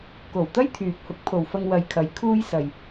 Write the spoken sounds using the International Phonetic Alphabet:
ko˨˩wt̪ɐ˥j t̪ʰyː˨p̚ hʊ˨˥k̚pʰo˨wfɐ˧ŋ wɐ˨jkʰɐ˨˧j kʰuː˥jsɐ˧j

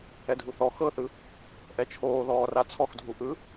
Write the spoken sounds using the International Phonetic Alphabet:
ɛdʱuθɔ xɤθɯ | ʔɛt͡ʃʰoː ðɔːrat͡sʰɔxdʱu ʔɯ

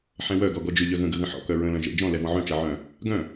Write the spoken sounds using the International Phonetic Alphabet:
ħɛ̃wœɡɔ ɡɔd͡ʒʏʎœ ɣə̃ɡə ɣə̃ħɔ̰kœ ɹə̃lœ̃ ʒə̰ d͡ʒɔ̃ lɛvɔ̃ʕœ̃t͡ʃɜ ʕœ̃ | ɡœ̃

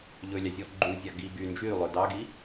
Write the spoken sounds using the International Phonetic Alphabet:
ʎɵlʲɑ zʲɔ ɡ͡ǃuzʲɑ ɡi ɡy nd͡ʒylˠɵ dɑɡi

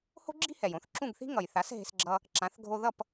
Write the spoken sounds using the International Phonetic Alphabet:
ho̤˥ɡ͡ǁi̤˥hɛ˩j õ˩˥θǁũ˥˩ɡθi̤˥ ŋʌ˩jθa˩˥s ɦe̤˧sɡ͡ǁʌ˧ | ǁã˩˥θ ɡʱo˧ðʌ˥˩p

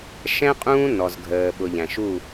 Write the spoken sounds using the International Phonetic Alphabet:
ʃɛ̃˦ qʼũː˦ nɔ˨zɡʱəː˨ɓʊ˨ʎæ̃˨ʃ u˦˨

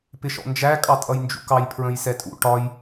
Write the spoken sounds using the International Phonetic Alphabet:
pɪʃɔ̰nd͡ʒæ kʼɑtʼʌjnd͡ʒṵkɑj pʰɹə̃jsɛtʼṵ ʈɒj

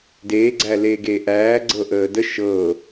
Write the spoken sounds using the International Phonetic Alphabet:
deːɡ͡ǀæleː ɡeːʔæːɡ͡ǀɤ ʔəːdə ʃɤ

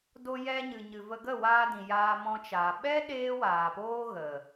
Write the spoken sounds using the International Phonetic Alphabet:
do˧jɛ˧ɲɨ˨ ɲɨ˨və˧ ɡə˦˨waː˧dĩ˨ jaː˧mɔ̃˧t͡ʃaː˨ ɓɛ˦ ɗeː˦waː˨poː˦ ɣə˨

